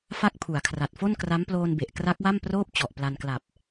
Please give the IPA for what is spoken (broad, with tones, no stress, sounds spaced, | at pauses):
f a˥˩ k̚ pʰ u˩˦ a̯ kʰ r a˨˩ t̚ f o˥˩ n k r a˦˥ m p l oː˧ n b e˨˩ ʔ k r a˦˥ k̚ w a˥˩ m p r oː˥˩ p̚ t͡ɕ ɔ˨˩ ʔ p l a˧ n k l a˨˩ p̚